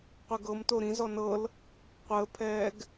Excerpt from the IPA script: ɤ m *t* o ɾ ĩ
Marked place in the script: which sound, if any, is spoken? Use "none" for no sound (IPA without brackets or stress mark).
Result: t